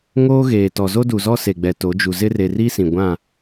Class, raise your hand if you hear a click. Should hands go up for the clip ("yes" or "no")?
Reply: no